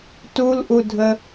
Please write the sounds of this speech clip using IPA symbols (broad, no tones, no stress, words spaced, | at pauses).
tulʔudʱə